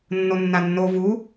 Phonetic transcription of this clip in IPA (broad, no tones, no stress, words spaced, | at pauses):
nːonːanːo vu